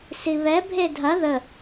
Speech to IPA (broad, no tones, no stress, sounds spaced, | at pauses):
s i β ɛ bʱ e dʱ ɐ ð ə